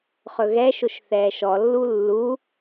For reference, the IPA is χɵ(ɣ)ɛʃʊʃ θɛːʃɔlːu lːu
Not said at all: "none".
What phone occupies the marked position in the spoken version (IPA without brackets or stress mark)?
ɣ